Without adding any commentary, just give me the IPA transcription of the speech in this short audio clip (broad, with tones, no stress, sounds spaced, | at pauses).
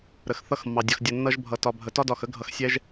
ɾ ə˨ x θ ʌ˦˨ x mː ɑ˨ dʲ ʌ˨ x dʲ ə˨ nː ʌ˧ ʒ bʱ ʌ˨ t ɒ˨ bʱ ə˨ t ɒ˦ d ɒ˨ x ə˦ ɡʱ ʌ˨ x sʲ ɛ˧ ʒ